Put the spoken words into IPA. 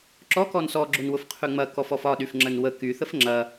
ǁ ɔ k ɔ n s ɔ ɡ͡ǁ ʊ n w ʊ f qʰ y ŋ͡m ɐ k ɔ f ɔ f ɒ ɗ y f ŋ͡ǁ ə n w ə k y θ ə f ŋ͡ǁ ɐ

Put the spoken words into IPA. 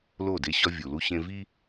l o˦˨ d e˦ ɕ ɒ˦ vʲ u˨ l u˦ ɕ ẽ˦ v i˦

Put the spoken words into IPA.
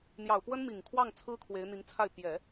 n̪ j ɑ˨˩ ʊ̯ p w ə˥ n m i˨˩ ŋ kʰ w ɑ˥˩ ŋ t͡sʰ ɹ̩˥ kʰ w e˧˥ ɪ̯ n̪ i˧˥ ŋ t͡sʰ a˥˩ ɪ̯ p j ɛ˨˩˦

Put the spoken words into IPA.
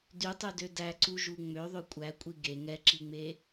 d y tˤ y d ø d æ ǀ u ʒ u ŋ͡m ø ðˤ ø kʷʼ æ kʷʼ i ɡ e ŋ ɛ ǁ i ŋ͡m e

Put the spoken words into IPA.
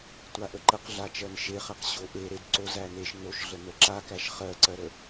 tʷ a ʔ ə ǃ ə q ɮ a t͡ʃ ɜ n ʃ e χ æ q ɕ o ʔ e ɾ e d ǀ o z æ n e ʃ n o ʃ ɮ ə n ə ǁ a k æ ʃ χ ɜ ǀ ɜ ɾ ə

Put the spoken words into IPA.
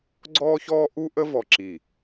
ɡ͡ǀ ɔː˥ ç ɔː˥ ʔ u˥ ʔ ə˥ v ɔ˧˩ ǁ i˧˩

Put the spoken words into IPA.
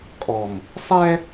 kʼ ɔ˨ m | sˤ ɛ˦

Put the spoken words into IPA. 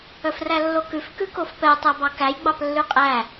œ f r æ lː o k ʉ f k ʉ k o f p ɛ tˤ æ b ɑ k æ j ɡ͡b ɑ p lː ʉ qʼ æ

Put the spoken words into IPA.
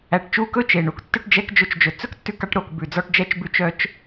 æ˨ ʈ t͡ʃ u˧ k ɵ˦ t͡ʃ e˨ ɳ u˨ k tː œ˧ ʈ d͡ʒ ɛ˧ k d͡ʒ ɵ˧ t͡ʃ d͡ʒ ɵ˨ t͡s ɵ˦ k tː ʉ˧ k ɑ˧ ʈ ɾ o˨ k b ʉ˨ d͡z ɔ˧ ʈ d͡ʒ ɛ˧ t͡ʃ b ʉ˧ t͡ʃ œ˧ t͡ʃ

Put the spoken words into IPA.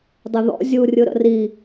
dˤ ə ð ɔ̰ zʲ u rʲ ɯ ɾ ə̰ r i

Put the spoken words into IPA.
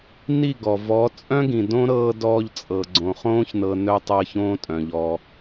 n i˦˨ ɡ ɔ˨ v ɔ˨˦ t͡sʼ œ̃˦ ɡ ĩ˨ d õ˦ ɾ ɤː˧ d ɔː˧ ʎ t͡sʼ ɤ˨ ɡ͡ǀ õ˨ χ õː˦ ç n ɤ˧ n œ˦ tˤ ɤ˧ ç õː˦ tʼ œ̃˨ ʎ ɔ˧

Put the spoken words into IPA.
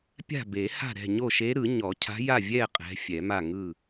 pʲ a̤˥˨ b e˨˩˦ h a̤˥˨ ɾ ɛ̤˥˨ ɲ o˥˨ ʃ e˧˥ ɾ ɯ˨˩˦ ɲ ɔ˨˩˦ cʰ a̤˧˥ j a˥˨ vʲ ɛ˥˨ qʼ ɛ̤˧˥ fʲ ɛ˨˩˦ m a˥˨ ŋ ɯ˥˨

